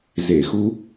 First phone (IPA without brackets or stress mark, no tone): z